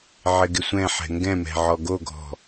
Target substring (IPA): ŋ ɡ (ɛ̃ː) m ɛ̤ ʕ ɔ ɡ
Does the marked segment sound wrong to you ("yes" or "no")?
yes